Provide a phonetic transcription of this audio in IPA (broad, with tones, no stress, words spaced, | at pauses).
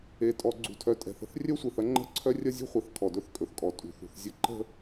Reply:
e˨tʼɔ˨ ɡ͡ǀṳ˨tʰœ˨tʼɛ̤˨θə̤˦θ rʲœ˦sʷe˨θɐ˦ŋ͡ǃə̤˦˨ ǀʰœ˦rʲɐ˦zʲṳ˦χʷɛ˨θ kʰɔ˨dɵ˦θkʼɵ˨θkʼɔ˨ tʼṳ˨θṳ˨θzʲə˦˨ ǃə̤˦